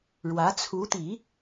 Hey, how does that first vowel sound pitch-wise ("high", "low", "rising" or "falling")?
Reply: rising